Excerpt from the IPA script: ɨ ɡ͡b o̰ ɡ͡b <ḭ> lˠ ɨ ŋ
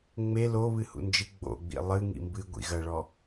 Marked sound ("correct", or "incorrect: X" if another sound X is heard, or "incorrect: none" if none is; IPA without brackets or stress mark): correct